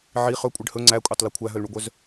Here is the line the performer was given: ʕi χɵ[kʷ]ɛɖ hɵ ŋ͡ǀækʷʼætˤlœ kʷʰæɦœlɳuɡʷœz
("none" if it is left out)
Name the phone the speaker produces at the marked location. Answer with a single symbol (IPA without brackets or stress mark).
kʷʼ